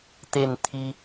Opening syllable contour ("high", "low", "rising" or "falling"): falling